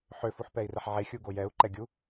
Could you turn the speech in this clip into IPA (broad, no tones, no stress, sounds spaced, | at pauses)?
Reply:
ħ ø f u ħ p ɛ i̯ r ɛ ħ ʕ e xʲ u ɡ o j ɛ u̯ ǃ ɛ ɡʲ u